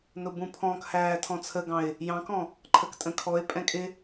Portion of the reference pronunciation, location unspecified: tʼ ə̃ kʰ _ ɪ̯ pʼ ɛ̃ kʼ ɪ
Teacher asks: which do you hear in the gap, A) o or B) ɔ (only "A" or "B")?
B